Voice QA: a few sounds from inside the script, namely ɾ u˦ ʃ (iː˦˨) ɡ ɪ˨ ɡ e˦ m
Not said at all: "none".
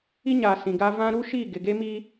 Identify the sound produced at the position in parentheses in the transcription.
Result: iː˦˨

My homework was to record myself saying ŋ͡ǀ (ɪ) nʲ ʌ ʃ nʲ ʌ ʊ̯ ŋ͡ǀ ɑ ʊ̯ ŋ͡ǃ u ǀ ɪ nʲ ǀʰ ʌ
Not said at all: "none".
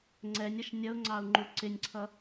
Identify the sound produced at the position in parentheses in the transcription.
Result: ɛ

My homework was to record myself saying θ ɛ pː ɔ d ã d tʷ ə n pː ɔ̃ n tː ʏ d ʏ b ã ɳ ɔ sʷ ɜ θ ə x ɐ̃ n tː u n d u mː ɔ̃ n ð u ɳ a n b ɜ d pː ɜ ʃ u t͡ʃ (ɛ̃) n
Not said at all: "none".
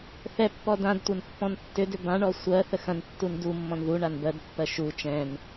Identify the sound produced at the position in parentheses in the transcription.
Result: ɛ̃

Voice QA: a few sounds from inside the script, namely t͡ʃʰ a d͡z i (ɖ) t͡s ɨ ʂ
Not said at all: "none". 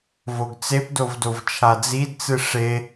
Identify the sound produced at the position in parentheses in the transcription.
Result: d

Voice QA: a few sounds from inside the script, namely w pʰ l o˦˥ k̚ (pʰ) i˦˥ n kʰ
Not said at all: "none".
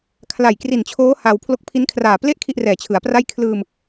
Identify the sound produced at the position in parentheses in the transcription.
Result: pʰ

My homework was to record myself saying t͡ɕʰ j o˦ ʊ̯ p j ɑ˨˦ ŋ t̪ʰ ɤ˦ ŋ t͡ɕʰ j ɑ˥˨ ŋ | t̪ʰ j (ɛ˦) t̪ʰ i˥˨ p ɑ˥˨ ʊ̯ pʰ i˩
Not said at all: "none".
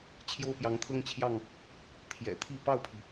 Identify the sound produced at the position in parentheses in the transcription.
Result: ɛ̰˨˩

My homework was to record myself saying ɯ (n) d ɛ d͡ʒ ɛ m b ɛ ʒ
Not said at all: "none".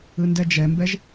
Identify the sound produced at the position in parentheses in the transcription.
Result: n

